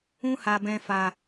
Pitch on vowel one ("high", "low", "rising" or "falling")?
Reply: high